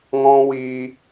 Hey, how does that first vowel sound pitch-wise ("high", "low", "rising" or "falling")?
high